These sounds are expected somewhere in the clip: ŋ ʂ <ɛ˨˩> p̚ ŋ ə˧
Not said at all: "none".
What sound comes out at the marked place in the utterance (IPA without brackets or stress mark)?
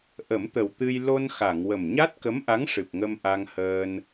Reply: ɨ˨˩